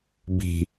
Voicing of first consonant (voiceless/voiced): voiced